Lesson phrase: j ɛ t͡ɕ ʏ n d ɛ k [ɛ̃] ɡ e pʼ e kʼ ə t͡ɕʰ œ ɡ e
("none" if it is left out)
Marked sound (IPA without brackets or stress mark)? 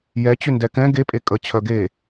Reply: ɛ̃